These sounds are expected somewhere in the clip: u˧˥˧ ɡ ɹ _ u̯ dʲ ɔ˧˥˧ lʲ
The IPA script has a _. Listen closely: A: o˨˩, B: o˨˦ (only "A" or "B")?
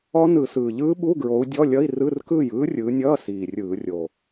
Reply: B